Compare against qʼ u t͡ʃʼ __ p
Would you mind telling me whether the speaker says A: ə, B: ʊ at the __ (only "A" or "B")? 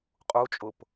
B